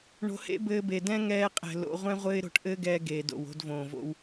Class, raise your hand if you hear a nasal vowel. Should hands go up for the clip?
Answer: yes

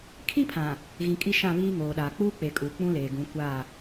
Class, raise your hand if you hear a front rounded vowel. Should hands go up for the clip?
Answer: no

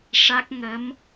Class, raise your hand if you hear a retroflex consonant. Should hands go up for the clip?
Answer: yes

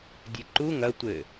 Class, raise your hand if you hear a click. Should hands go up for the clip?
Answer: yes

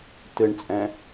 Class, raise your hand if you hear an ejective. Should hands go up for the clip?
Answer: yes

